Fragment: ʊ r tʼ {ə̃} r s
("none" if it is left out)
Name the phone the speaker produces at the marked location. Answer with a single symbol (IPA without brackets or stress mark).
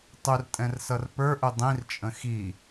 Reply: ɛ̃